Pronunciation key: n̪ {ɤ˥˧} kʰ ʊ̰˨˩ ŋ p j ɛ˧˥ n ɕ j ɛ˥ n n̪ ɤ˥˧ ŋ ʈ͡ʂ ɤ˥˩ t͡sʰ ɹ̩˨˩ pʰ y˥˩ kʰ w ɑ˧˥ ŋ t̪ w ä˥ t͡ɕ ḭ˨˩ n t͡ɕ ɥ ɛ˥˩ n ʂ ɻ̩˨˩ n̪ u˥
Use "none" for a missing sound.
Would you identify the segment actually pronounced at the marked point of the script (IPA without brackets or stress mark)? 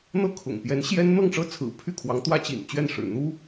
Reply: ɤ˥